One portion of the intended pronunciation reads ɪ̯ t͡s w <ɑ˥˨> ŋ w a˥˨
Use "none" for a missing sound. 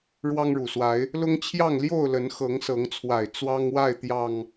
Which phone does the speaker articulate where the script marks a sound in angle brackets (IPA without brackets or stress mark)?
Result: ɑ˦